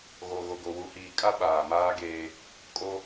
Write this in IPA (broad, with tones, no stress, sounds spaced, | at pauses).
ɣ o˨ ɣ o˨ ɡ o˨ w u˨ h iː˨ kʼ a˦ ɓ aː˨ m aː˦ ɡ eː˦ | kʼ o˦